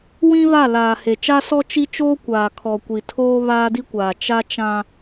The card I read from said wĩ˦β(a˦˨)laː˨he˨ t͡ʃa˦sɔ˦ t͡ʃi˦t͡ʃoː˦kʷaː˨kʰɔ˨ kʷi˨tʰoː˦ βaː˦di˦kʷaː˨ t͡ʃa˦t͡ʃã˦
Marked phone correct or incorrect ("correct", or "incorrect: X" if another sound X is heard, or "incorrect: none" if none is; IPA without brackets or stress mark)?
correct